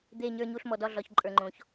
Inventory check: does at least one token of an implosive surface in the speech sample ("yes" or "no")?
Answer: no